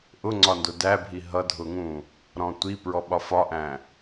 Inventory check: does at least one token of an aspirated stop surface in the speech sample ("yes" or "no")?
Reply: no